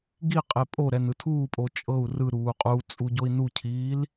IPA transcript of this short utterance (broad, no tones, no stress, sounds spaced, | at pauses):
ɡ i qʼ e pʼ o ɾ ɛ n ɯ tʰ uː pʼ o t͡ʃʼ ɤ u̯ r ɯ ɾ uː qʼ u t͡sʼ u ɟ o i̯ n u cʰ iː l